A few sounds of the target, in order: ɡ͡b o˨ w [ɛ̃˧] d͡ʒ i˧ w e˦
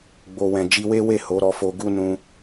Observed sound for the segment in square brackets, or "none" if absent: ɛ̃˨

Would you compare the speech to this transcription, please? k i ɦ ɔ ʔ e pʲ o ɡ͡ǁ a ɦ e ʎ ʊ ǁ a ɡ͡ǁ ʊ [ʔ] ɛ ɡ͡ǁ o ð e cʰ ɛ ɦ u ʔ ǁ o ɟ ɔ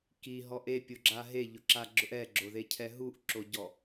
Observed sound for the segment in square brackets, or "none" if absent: ʔ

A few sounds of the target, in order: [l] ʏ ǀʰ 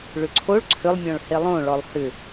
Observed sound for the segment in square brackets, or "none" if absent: ɭ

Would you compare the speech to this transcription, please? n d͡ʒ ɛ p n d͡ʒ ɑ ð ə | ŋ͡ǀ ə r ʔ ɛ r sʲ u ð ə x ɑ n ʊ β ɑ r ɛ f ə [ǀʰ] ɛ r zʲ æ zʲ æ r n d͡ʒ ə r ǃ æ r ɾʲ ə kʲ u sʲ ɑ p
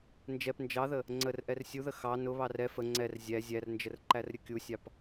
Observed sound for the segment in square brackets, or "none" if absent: ŋ͡ǀ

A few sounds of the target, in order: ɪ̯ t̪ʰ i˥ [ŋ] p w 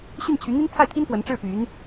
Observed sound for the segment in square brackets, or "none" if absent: n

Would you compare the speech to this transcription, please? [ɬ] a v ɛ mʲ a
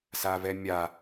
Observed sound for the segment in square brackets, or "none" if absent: s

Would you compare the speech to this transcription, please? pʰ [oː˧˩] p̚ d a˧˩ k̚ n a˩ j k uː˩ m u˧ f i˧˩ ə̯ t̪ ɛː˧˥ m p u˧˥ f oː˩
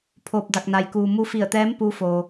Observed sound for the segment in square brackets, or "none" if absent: oː˧˩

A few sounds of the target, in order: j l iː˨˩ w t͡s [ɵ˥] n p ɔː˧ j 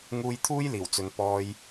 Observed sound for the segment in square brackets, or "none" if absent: ɵ˨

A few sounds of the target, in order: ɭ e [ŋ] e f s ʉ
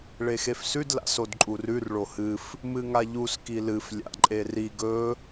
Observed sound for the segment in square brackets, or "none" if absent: x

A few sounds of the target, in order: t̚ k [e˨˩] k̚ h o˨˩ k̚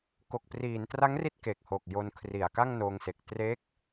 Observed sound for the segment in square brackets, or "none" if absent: e˨˩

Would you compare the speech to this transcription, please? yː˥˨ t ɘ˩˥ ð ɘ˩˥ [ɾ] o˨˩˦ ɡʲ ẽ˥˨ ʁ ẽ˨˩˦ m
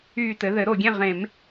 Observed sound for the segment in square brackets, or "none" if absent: ɾ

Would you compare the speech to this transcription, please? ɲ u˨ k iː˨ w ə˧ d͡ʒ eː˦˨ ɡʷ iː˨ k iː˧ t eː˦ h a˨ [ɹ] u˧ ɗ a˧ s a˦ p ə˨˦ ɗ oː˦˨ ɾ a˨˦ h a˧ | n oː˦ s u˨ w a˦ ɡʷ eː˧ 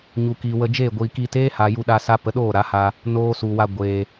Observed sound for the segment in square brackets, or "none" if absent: j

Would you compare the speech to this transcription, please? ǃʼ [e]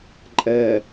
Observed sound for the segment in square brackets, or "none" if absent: ɛ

